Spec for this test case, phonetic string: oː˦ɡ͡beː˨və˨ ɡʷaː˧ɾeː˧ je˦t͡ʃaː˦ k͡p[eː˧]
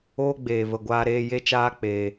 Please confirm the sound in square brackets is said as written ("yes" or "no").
yes